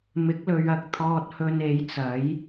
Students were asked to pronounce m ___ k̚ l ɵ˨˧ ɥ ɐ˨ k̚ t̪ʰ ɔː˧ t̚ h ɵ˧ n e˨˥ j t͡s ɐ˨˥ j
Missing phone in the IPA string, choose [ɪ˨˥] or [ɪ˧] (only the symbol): ɪ˨˥